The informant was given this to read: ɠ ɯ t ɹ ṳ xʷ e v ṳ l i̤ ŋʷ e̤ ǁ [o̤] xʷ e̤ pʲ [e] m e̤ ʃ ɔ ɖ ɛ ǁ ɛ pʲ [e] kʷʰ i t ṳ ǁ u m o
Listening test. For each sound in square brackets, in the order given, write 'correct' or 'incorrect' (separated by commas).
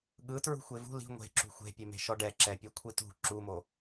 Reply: incorrect, correct, correct